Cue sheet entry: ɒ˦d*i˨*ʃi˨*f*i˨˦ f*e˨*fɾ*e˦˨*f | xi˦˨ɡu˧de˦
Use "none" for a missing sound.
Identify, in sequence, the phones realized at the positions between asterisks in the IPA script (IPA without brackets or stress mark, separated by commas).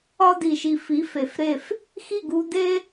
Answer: i˨, f, e˨, e˦˨